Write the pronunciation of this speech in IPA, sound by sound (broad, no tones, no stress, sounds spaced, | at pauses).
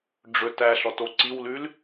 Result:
ɖ͡ʐ ɵ t æ ɬ ɔ t o ǀ i w l ʉ l